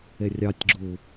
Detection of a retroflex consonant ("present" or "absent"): absent